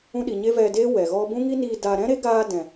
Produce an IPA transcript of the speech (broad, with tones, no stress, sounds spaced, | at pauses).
ũ˧ ɗ i˨ ɲ e˦ v ɛ˧ d eː˦ w ɛ˨ ɣ ɔ˦ b ũ˦ ŋ i˦ n iː˧ d aː˧ ɾ ɛ̃˦ ɾ e˦ ɡ aː˧ d ɛ̃˨